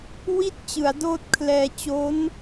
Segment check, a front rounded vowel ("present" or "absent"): absent